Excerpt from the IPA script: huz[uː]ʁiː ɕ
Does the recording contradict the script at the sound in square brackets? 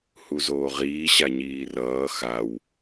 yes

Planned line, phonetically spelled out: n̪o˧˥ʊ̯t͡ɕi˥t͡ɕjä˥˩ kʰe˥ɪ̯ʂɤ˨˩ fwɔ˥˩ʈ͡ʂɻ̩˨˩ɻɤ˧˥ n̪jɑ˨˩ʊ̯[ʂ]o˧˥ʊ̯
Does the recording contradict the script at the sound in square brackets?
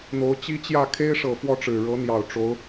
yes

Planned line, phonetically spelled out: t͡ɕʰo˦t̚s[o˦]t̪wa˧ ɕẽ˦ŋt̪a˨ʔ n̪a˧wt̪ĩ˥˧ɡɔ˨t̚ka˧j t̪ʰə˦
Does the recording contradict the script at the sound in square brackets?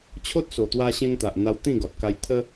yes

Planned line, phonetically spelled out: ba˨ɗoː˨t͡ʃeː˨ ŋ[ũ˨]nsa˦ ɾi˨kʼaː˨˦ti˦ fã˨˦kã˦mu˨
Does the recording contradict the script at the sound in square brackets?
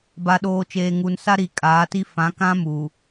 yes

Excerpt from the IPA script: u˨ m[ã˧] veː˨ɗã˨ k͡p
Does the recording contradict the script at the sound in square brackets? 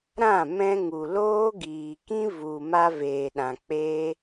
yes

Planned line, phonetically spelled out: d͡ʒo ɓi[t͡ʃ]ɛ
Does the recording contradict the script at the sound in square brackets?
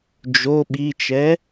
no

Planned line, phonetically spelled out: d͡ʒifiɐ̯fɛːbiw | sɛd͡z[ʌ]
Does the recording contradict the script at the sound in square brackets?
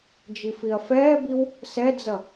no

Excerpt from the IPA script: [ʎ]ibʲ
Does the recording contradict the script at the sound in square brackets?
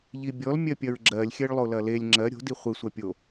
no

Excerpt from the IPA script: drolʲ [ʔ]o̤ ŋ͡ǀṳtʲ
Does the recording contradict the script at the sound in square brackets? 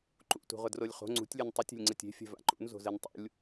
yes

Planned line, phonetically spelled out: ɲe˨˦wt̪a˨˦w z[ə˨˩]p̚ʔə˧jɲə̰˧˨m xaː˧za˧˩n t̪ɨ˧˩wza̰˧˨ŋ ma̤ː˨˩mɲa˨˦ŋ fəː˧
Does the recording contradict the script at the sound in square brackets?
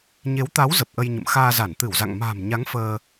no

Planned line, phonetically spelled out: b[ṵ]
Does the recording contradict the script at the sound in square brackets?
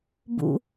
no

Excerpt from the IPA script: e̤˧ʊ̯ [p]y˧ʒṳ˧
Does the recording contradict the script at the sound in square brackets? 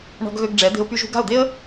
no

